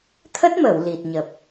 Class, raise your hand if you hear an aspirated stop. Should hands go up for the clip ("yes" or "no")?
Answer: yes